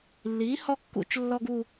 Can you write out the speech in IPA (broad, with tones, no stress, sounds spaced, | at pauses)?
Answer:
lː iː˩˥ h ɔ˦ kː ṵ˧˩˧ t͡ʃ lː ɔ˦ ɡ u˦˨